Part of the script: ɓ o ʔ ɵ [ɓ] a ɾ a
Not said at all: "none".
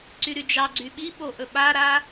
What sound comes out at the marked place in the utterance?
ɓ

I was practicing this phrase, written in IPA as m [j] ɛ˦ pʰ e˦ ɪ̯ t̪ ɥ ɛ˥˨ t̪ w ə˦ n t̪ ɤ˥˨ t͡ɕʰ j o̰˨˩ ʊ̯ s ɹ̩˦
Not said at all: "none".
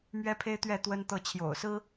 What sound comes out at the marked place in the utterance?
ɥ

